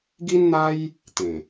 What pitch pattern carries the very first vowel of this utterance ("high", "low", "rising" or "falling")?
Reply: high